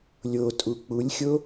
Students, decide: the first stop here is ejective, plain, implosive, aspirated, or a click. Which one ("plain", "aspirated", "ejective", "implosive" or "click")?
ejective